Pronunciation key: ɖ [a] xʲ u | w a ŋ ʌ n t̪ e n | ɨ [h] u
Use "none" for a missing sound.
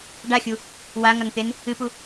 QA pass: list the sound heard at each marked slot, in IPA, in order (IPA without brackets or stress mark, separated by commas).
a, p